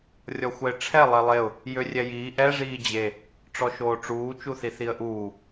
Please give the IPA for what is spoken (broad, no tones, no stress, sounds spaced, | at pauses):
rʲ ɔ xʷ ɛ ɪ̯ ʈ͡ʂʰ ɛ lˠ ɛ lˠ e ʊ̯ | j ø rʲ ɛ j iː ʔ ɛ ʐ iː d͡ʑ e | ʈ͡ʂ ɔ ʃ oː ʈ͡ʂ uː t͡ʃ u θ i θ i ə̯ ʔ uː